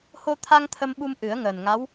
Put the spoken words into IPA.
ho˧t̪ʰa˧ŋ t̪ʰə˧mɓu˧m ʔɨ˨˩˦ə̯ŋəː˨˩n ŋa˧˥w

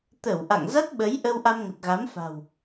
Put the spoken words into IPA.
t̪ə˧˩w ʔa̰˧˨ŋ za˦˥t̚ɓə˨˦jʔə˧w ʔa˧mŋə˨˩t̚ɣa˨˦mfa̤˨˩w

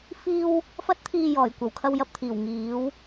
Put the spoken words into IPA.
fiː˧w | fɐ˨˥t̚t̪ʰiː˨ jɔː˨˩jkʷɐ˨˩w kʰɐ˧wjɐ˧p̚t̪ʰiː˨˩w ŋiː˨˥w

